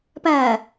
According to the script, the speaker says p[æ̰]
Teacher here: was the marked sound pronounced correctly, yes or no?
no